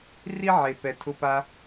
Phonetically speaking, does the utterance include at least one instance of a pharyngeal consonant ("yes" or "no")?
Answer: yes